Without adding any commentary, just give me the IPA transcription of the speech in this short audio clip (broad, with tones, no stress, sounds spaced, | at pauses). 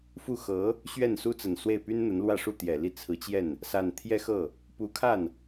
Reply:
f u˥˩ x ɤ˧˥ | ɕ ɥ ɛ˥˩ n s u˥ t͡s ə˨˩ n s w e˥˩ ɪ̯ p y˥ n n̪ ə˧˥ n l w ä˥˧ ʂ u˥˩ t̪ j ɛ˨˩ l i˥˩ t͡sʰ ɹ̩˧˥ t͡ɕ j ɛ˥˩ n | s a˥˧ n t̪ʰ j ɛ˥˧ x ɤ˥˩ | p u˧˥ kʰ a˥˩ n